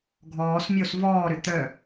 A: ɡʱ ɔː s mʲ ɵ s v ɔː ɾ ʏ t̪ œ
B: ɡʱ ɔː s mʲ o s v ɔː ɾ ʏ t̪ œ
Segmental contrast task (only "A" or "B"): B